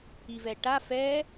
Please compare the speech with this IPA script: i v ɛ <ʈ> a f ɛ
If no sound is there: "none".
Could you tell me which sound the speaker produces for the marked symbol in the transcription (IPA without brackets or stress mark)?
ʈ